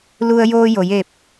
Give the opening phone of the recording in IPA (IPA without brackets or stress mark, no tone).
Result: l